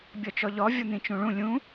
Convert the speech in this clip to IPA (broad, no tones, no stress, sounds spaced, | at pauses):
bʲ ɔ t͡ʃ ɔ ʎ ɔ vʲ ɔ n̪ ĩ t͡ʃ ũ ɭ ũ lʲ ũ